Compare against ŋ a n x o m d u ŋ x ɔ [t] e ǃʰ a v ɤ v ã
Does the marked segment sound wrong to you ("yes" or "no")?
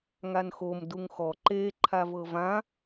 yes